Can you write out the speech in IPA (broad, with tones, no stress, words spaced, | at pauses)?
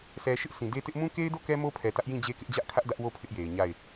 sʰɛ˨ʃɪ˦ʔ sʰĩ˨de˦tɪ˦ʔ mũ˦ke˦ɪ̯do˦˨ kɛ˦mo˦pʰɛ˨ tä˦ʔjĩ˦˨d͡ʑe˦kɪ˦ʔ d͡ʑä˦ʔkʰä˦ʔ dä˦ʔwo˦˨ pʰɪ˦ʔje˨ɪ̯ ɲa˦˨ɪ̯